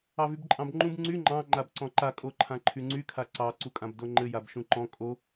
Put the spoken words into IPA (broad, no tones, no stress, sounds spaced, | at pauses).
ɑ v y b ǃʼ ɑ̃ b ŋ͡ǃ ũ b ŋ͡ǀ y ŋ͡ǃ ɑ̃ ŋ͡ǃ a b ǀ ɔ̃ ǃ a kʼ o ǃʰ ã ǃʰ y ŋ͡ǀ y kʰ a ǀ ɑ ǀ u kʼ ã b d o ŋ͡ǃ ɘ j a b ʃ ũ ǃ ɔ̃ kʼ o